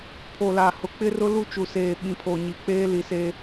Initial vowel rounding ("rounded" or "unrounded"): rounded